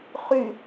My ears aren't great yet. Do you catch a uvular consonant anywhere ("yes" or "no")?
yes